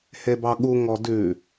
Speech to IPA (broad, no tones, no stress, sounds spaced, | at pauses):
h e b ɑ ɠ u ŋ ɔ d ʉ